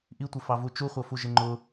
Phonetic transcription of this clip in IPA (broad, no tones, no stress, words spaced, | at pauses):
ʔitʷɪfɑvu t͡ʃuχʷʌfu ʒɪŋ͡ǃʊ